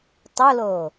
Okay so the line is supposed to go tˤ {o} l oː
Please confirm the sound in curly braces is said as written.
yes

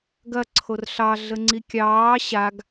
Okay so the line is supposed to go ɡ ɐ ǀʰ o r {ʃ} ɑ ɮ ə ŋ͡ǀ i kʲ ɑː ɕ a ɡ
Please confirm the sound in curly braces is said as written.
no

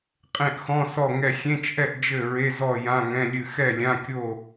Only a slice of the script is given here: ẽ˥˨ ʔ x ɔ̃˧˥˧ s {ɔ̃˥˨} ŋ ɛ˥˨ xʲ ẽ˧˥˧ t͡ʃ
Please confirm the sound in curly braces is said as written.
no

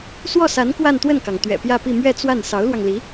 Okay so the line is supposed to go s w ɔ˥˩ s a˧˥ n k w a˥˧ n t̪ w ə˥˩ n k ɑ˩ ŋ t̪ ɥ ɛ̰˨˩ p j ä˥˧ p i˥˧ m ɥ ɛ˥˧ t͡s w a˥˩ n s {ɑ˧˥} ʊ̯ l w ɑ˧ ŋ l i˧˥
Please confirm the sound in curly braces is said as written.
yes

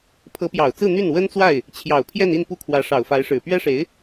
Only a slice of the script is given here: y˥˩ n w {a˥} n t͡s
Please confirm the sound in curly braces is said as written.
no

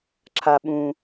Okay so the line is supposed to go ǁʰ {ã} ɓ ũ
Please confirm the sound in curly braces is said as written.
no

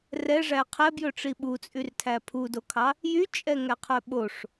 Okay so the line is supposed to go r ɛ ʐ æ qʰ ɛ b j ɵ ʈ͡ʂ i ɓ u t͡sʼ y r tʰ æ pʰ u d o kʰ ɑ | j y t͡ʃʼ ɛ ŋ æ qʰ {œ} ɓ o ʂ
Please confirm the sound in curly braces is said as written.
yes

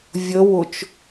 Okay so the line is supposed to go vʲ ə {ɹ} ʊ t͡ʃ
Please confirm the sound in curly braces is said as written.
no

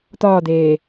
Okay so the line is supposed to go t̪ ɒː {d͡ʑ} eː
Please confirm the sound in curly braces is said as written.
no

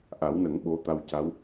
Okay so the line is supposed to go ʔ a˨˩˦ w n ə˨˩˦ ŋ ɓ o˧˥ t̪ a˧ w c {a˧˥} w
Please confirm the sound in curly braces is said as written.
yes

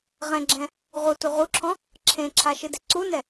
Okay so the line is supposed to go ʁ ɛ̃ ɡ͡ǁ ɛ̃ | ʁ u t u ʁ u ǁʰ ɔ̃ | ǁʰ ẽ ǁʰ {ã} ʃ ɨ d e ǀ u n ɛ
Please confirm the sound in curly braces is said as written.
no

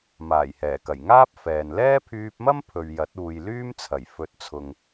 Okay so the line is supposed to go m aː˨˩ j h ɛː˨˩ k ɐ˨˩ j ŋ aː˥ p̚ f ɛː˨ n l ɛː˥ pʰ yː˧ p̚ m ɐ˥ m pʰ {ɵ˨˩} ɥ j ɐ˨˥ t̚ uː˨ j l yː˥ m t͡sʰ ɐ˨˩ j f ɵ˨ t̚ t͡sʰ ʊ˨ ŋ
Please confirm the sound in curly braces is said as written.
no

